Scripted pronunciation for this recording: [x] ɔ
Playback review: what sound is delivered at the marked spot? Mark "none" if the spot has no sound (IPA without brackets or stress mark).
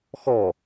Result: x